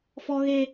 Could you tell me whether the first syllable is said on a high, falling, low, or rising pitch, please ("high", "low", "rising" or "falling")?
high